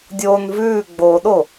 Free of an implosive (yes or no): no